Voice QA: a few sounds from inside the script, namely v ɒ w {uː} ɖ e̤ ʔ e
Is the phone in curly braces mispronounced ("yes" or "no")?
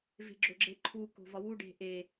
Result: yes